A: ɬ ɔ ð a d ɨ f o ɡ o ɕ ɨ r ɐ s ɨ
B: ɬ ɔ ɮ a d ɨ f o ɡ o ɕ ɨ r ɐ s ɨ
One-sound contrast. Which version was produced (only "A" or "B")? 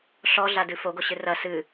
B